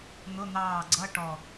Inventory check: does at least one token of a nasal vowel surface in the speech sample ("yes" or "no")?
no